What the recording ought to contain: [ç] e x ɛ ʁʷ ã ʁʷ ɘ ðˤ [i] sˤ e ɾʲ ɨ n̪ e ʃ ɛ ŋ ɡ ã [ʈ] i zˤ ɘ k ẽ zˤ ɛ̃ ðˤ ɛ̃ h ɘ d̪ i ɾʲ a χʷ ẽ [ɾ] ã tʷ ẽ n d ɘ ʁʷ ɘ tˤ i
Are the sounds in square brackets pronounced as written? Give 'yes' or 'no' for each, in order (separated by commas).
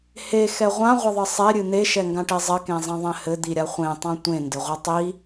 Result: no, no, yes, no